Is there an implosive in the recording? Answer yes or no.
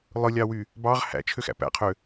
no